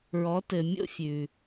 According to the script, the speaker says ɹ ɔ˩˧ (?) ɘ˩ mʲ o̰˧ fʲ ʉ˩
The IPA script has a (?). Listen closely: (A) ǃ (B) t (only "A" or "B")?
B